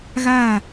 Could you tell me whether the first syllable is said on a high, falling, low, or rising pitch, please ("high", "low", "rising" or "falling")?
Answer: falling